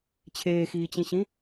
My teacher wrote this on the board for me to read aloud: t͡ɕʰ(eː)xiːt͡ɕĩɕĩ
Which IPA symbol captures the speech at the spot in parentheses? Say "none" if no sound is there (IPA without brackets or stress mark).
eː